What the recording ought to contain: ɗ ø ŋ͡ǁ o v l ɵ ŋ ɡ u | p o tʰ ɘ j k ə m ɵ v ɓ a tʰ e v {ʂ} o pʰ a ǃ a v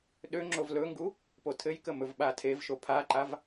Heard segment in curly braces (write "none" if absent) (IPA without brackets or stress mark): ʃ